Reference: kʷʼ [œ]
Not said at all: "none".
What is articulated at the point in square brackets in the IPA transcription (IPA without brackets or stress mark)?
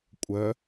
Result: œ